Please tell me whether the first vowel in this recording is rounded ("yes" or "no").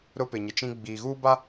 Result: yes